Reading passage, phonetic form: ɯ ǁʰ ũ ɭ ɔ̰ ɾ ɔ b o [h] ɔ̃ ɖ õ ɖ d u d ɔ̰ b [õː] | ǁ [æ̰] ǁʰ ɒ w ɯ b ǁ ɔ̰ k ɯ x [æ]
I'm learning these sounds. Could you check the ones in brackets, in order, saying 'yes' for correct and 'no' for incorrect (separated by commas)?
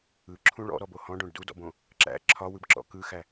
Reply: yes, no, yes, yes